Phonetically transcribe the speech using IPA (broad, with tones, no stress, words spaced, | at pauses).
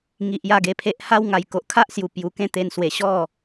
ŋi˨ʔja˥˧ɡe˧pʰe˦ʔ ha˦wŋa˨˩j ko˨ʔkʰa˦ʔsju˨˩ pju˨˩kẽ˥˧t̪e˧n swe˨˩ɕɔ˥˧